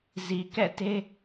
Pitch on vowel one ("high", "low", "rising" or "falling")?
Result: low